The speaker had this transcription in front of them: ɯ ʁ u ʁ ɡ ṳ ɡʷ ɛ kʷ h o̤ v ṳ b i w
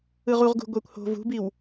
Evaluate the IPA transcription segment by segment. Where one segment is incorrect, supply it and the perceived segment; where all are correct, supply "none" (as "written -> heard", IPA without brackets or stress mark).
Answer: none